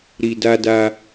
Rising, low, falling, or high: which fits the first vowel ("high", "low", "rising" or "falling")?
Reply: low